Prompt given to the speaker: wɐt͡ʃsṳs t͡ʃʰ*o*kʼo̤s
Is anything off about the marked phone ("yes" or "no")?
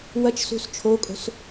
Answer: no